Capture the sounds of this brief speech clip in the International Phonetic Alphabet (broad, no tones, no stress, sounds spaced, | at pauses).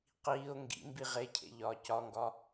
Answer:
q iː o̯ ŋ ɡ ḭ m b i ʁ e cʰ ḛ ʎ ɒː c ɒ ŋ ɡ ɒ